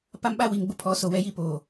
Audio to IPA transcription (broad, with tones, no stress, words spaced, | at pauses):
pa˦mɓa˦ wi˨ŋɡ͡bʊ˦ pʰɔ˨˦so˨wɛ˦ji˦ poː˨